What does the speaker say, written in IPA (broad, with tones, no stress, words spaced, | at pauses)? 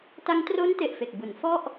ta˧ŋtro˦˥nte˨˩ʔ fe˨˩k̚bu˩˦n fɔ˥˩ʔ